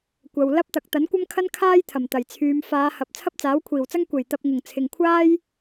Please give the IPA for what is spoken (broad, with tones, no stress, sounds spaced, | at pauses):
kʷ ɐ˨ w l ɐ˥ p̚ t̪ ɐ˨˥ k̚ t̪ ɐ˨˥ n kʷ ɐ˥ m kʰ ɐ˥ n kʰ aː˥ j t̪ʰ ɐ˨˩ m t̪ ɐ˨˩ j t͡sʰ yː˨˧ m f aː˨˧ h ɐ˨ p̚ t͡sʰ ɐ˥ p̚ t͡s aː˨˥ w kʷʰ iː˨˩ w t͡s ɐ˥ ŋ kʷ e˨˩ j t̪ ɐ˧ p̚ ŋ ʊ˨˩ ŋ t͡sʰ ɪ˨ ŋ kʷʰ aː˥ j